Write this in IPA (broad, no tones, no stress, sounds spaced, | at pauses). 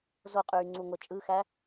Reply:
z o qʼ yː ŋ͡ǀ u ŋʷ e t͡ʃʼ ɯ x æ